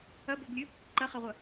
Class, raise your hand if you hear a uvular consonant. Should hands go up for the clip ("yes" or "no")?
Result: yes